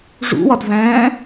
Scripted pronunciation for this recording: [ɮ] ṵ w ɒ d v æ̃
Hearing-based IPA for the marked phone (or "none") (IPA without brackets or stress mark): ʐ